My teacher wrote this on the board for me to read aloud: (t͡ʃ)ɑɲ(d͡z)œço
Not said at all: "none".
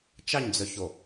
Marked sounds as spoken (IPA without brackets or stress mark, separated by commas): t͡ʃ, d͡z